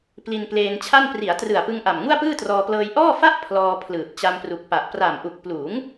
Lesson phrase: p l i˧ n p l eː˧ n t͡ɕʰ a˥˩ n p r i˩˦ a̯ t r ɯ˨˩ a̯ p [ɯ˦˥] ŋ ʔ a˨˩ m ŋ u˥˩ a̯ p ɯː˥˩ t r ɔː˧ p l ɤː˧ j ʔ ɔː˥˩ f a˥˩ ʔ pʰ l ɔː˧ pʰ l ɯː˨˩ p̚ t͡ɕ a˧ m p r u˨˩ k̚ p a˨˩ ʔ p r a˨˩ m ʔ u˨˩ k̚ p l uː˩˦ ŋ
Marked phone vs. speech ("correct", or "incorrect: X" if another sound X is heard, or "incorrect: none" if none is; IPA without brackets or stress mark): incorrect: ɯ˧